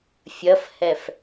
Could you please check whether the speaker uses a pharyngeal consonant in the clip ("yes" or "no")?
no